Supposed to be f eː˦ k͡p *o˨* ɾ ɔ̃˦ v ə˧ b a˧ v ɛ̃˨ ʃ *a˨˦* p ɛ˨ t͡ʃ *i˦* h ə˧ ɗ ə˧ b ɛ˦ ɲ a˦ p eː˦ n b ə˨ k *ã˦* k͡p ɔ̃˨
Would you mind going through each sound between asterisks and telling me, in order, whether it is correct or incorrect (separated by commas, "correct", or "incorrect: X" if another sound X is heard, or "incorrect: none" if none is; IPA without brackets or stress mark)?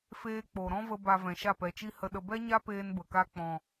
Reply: correct, incorrect: a˦˨, correct, incorrect: a˦